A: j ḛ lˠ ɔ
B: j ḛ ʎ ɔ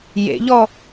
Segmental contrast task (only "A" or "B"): B